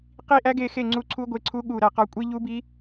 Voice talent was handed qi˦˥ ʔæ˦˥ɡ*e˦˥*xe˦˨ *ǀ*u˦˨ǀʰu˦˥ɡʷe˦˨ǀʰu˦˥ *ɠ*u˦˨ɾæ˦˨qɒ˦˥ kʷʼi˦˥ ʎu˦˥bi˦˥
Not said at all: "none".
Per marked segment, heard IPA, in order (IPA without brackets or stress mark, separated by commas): e˦˨, ŋ͡ǀ, ɠ